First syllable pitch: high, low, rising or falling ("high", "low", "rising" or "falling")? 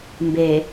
low